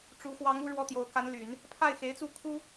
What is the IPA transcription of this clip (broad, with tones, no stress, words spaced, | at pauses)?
ʈ͡ʂu˧˥ xwɑ˧˥ŋu˥˧ ɻwɔ˥˩t̪jo˧˥ʊ̯ ka˧˥nly˨˩˦n | pʰa˥˩ɪ̯xe˧˥ɪ̯t͡su˥˩ kʰu˥